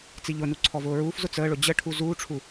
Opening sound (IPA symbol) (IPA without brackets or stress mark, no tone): t͡s